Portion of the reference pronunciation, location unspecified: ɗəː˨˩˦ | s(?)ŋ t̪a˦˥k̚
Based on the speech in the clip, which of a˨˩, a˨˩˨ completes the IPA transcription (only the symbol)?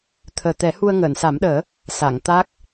a˨˩˨